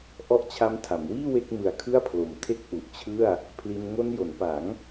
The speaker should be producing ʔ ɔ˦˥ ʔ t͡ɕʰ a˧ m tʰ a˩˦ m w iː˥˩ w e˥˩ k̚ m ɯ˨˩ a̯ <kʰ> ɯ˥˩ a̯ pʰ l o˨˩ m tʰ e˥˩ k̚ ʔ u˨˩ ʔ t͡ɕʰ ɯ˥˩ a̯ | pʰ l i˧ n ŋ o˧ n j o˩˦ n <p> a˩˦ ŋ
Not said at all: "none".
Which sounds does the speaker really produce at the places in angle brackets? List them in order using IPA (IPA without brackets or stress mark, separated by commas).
kʰ, p